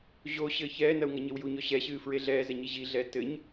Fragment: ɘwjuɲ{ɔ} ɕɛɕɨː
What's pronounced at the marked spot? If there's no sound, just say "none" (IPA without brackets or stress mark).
ɔ